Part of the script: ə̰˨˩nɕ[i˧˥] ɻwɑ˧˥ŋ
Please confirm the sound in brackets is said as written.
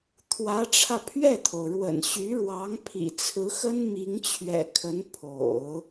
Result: no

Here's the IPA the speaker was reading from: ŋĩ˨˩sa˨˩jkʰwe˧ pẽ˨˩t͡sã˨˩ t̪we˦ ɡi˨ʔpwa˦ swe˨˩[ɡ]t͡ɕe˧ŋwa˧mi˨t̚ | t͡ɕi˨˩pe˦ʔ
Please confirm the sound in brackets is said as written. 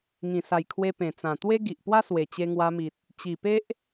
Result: no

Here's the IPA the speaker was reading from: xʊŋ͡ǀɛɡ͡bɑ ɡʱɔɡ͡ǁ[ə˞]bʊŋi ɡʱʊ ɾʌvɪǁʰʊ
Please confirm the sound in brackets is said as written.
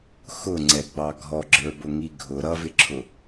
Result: yes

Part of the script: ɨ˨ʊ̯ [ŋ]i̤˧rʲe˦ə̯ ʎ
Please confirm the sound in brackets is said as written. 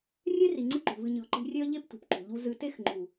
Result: no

